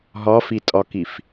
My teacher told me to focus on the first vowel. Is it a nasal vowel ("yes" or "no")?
no